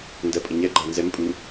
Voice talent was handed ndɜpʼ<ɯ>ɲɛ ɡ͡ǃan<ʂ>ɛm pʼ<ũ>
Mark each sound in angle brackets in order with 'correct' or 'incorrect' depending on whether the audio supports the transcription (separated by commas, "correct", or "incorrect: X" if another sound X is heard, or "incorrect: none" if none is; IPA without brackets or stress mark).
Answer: incorrect: ə, incorrect: z, incorrect: u